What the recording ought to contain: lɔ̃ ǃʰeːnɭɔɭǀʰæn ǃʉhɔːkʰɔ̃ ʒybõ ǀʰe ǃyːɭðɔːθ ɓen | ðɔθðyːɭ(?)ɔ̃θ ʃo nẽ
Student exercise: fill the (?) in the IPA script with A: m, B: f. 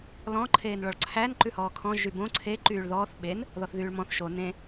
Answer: A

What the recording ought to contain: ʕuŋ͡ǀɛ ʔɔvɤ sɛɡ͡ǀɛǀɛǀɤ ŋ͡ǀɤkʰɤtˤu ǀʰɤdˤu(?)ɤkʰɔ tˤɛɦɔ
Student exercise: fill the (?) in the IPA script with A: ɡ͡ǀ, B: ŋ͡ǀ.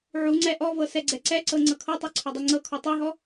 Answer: B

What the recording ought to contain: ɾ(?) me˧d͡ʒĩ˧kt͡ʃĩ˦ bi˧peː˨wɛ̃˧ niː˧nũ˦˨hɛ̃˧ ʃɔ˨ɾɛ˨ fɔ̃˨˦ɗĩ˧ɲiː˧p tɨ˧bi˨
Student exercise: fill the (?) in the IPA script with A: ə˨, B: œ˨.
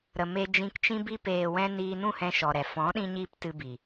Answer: A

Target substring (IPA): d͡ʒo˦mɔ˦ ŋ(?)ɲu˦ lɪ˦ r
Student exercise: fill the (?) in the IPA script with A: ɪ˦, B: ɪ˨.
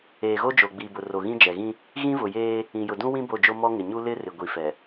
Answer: B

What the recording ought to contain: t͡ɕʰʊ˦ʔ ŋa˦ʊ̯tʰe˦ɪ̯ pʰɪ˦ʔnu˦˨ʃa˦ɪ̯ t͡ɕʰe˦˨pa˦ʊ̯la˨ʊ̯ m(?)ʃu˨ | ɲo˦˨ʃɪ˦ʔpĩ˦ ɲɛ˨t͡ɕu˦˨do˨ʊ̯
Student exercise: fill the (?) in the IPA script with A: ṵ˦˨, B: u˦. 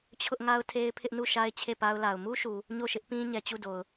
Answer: B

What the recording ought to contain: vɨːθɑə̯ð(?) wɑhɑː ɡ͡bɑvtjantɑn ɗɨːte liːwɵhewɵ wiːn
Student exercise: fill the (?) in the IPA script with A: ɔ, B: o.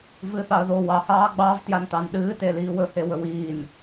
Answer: B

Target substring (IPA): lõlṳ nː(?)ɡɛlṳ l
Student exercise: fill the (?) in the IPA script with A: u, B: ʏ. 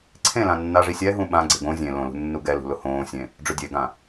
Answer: A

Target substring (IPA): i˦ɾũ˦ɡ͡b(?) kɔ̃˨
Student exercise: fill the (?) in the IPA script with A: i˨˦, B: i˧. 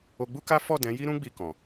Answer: B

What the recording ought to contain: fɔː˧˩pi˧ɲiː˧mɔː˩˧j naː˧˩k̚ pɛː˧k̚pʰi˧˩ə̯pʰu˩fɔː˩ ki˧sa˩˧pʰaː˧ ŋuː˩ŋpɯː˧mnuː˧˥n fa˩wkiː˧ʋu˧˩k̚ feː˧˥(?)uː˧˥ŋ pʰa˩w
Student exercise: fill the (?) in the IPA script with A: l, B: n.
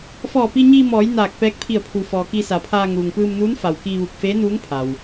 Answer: B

